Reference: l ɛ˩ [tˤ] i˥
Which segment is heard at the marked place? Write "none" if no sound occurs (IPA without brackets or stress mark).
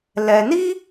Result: n